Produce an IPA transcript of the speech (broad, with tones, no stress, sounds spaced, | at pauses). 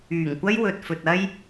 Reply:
yː˨˩ ŋ kʷ ɐ˥ j w ɵ˨ t̚ f ɵ˨ t̚ ɐ˧ j